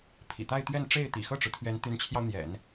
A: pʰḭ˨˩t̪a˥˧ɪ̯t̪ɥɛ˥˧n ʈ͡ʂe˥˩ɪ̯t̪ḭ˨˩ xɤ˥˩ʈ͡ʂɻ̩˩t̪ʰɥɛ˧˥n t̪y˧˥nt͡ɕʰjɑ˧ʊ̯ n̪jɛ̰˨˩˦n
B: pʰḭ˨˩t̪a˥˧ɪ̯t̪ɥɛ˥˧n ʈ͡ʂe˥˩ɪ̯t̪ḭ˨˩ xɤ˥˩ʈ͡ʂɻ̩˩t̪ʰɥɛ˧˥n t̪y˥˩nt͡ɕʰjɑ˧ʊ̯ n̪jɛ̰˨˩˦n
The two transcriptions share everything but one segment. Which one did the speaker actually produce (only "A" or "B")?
A